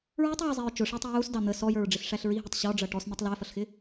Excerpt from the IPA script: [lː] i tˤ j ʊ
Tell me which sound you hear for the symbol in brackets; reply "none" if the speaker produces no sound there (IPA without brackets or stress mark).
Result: ɹ